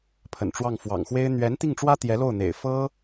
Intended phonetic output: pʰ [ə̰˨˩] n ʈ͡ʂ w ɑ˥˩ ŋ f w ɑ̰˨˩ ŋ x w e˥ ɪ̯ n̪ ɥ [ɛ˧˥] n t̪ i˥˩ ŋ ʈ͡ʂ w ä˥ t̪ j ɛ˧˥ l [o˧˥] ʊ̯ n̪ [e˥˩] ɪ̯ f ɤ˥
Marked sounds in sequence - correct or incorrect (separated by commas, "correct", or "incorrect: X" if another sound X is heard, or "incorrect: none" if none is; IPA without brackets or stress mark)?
correct, correct, incorrect: o˥˩, incorrect: ḛ˨˩